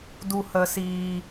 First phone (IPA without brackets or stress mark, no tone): d